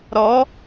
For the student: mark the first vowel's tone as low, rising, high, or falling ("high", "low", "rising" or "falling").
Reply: rising